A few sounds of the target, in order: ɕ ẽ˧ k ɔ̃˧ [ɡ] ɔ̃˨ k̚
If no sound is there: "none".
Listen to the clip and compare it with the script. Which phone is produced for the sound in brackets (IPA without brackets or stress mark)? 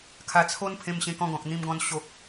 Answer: ɡ